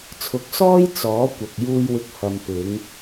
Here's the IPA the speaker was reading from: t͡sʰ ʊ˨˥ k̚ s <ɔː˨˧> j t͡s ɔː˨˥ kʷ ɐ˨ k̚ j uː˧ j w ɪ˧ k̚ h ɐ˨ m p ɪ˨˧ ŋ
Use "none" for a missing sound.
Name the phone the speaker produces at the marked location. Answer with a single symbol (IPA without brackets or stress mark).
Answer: ɔː˥